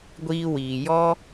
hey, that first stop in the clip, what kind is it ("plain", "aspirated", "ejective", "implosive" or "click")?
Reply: plain